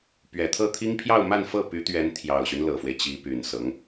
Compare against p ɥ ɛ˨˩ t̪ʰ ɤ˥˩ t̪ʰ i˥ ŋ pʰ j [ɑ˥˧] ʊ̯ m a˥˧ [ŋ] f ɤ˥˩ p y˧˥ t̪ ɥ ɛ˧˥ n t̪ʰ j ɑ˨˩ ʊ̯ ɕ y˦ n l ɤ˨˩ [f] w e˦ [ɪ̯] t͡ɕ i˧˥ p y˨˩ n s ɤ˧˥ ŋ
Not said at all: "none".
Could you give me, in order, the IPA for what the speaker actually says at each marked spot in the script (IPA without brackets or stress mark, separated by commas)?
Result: ɑ˥˧, n, f, ɪ̯